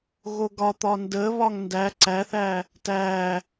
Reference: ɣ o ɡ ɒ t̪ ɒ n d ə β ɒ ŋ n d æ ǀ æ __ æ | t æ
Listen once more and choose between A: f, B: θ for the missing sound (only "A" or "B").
B